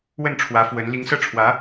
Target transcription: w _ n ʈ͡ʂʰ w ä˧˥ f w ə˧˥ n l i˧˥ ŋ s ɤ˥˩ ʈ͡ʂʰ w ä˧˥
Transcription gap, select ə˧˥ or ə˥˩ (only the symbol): ə˥˩